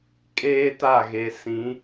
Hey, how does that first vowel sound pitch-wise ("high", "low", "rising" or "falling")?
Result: high